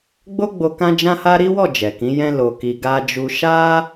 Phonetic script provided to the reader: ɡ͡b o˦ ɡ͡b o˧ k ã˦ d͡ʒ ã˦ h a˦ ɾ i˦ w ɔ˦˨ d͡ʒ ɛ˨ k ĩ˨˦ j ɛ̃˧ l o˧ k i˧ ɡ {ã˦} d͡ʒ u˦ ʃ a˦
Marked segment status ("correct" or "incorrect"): incorrect